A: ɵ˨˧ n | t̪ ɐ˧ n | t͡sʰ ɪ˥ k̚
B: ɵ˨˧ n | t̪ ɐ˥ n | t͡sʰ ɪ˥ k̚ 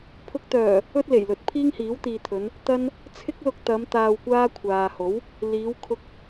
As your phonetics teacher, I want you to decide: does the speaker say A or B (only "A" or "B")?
B